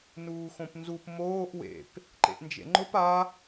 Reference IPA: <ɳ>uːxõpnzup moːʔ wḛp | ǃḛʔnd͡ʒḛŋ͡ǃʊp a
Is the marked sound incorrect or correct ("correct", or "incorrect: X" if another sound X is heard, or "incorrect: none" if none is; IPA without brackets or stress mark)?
incorrect: n